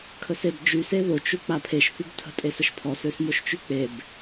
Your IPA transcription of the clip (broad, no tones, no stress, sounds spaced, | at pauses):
kʰ ə s e b d͡ʒ y s e ð o t͡ʃ u k͡p a pʰ e ʃ θ y b tʰ ə̤ tʼ e s ə ʃ pʰ ɔ s ø s m o ʃ t͡ʃ y k͡p e b